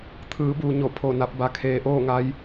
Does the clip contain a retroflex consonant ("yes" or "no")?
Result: no